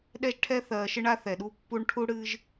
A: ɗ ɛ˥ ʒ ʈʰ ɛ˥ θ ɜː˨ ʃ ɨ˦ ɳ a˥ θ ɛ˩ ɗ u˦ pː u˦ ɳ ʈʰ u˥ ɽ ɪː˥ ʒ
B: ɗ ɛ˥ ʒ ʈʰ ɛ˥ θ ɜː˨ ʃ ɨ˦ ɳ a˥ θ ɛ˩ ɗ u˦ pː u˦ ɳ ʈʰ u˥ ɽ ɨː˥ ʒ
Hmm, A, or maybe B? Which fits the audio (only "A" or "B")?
B